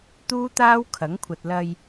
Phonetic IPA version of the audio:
t̪ uː˥ t̪ aː˥ w kʰ ɐ˨˥ ŋ kʷʰ ɐ˨ t̚ l ɐ˧ j

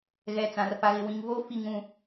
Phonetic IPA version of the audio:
ɣ ɛ˨ t͡s ã˨ r f a˨ ɣ ɪ˨ w ĩ˨ ŋ v o˦ f i˦ ŋ ũ˦

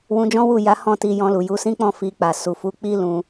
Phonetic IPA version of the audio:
w ũ˧ d͡ʒ ɔ̃˦ w u˦˨ j a˨˦ h ɔ̃˦˨ t i˧ j ɔ̃˧ l u˨ j u˨˦ s ĩ˦ k͡p ɔ̃˦˨ f i˧ k͡p a˨ s u˨ f u˨˦ k͡p i˦ l ũ˧

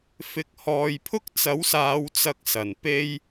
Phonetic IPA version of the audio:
f ɪ˨˥ k̚ h ɔː˨ j pʰ ʊ˥ k̚ t͡s ɐ˨˥ w s aː˨˧ w t͡s ɐ˥ k̚ s ɐ˨ n p e˥ j

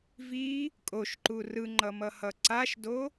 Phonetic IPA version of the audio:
v i | kʼ o ʃ ǃ u r ɯ ŋ͡ǃ ʌ m ʌ h ʌ ǀ a ʃ d o

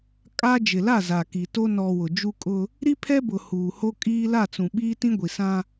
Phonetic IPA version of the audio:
kʼ a˦ d͡ʒ ɪ˨ l a˦˨ z a˨ k i˨ t o˦ n ɔ˨ w ʊ˨ d͡ʒ u˦ kʼ ʊ˦ | ɾ i˦ pʰ ɛ˦ b ʊ˨ h uː˨ h o˦ kʼ iː˦ l a˦˨ t͡s ũ˨ ɓ iː˦ t ĩ˦ ɡʷ i˨ s ã˦

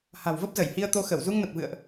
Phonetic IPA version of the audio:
h a̤˨˩ w v ə˦˥ p̚ z ə˧˩ j h i˧ ə̯ t̪ o˧ x ə˧˩ w z u˧ ŋ n ə˨˩ p̚ v ɨ̰˧˨ ə̯ ʔ

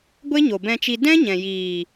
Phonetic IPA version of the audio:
ɡʷ e˦ ɲ o˨ b ɛ̃˧ t͡ʃ i˧ d ɛ̃˦ ɲ ɛ̃˨ j iː˨

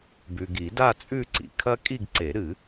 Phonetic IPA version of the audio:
b ʉ˨ ɡ i˨˩˦ d a˥˧ t͡sʼ ʉ˥˧ ǀ ḭ˨ kʰ ɐ˥ kʼ i˥˧ ɡ ǀ e˨˩˦ ɾ ɨ˨˩˦

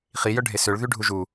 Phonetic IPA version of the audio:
χ i j œ ɖʱ e s ø ɭ ð y ɖʱ u ʒ u

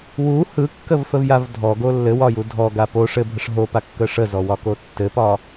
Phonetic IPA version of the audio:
w u h ɯ kː ə v f ə v j a v dʱ ɔ ɡ o lː ɘ w ɒ j u dʱ ɔ ɡ a p o ʂ ɘ bʱ ə ʂ ɦ o p a kː ə ʂ ə z ɔ w ɒ k o tː ɘ p ɒ

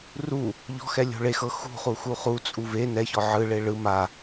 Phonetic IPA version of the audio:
r u | ʎ ɔ̤ x ɛ lʲ o̤ ɭ e x ɤ x ṳ χ u x u χ u t͡sʼ u v e n ɛ ç ɔ ʕ ɯ ɭ e ɭ ɯ m a

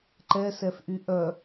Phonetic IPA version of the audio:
ǃ ɛ s ɛ f ʔ y ʔ œ

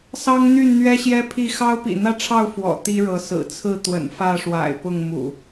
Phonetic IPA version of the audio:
s ɑ˦ ŋ n̪ y˥˨ n n̪ ɥ ɛ˦ ɕ j ɛ˦ pʰ i˥˨ x ɑ˦ ʊ̯ p ḭ˨˩ n̪ ä˥˨ ʈ͡ʂʰ ɑ˥˨ ʊ̯ f w ɔ̰˨˩ t̪ i˦ ɻ ɤ˨˦ s ɹ̩˨˩ t͡sʰ ɹ̩˥˨ t̪ w ə̰˨˩ n f ä˥˨ ʂ w a̰˨˩ ɪ̯ p ʊ˥˨ ŋ m ṵ˨˩

